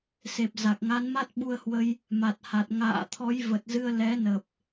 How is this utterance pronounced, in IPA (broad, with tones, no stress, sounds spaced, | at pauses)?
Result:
s e˨˩ p̚ z a˨˩ k̚ ŋ a˨˦ n m a˦˥ t̚ ɓ u˧ ə̯ h w ə˧ j | m a˨˩ t̚ h a˨˩ t̚ ŋ a̰ː˧˨ t̪ʰ ɔ˨˦ j v ə˨˩ t̚ z ɨ˧ ə̯ l ɛ˨˦ n ə˨˩ p̚